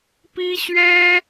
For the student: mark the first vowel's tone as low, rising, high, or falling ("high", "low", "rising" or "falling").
high